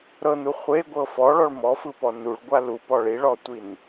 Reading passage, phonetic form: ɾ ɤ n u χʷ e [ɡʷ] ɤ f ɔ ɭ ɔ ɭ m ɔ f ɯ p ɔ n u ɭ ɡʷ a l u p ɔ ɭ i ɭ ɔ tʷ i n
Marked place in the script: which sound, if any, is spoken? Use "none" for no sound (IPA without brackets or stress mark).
ɡʷ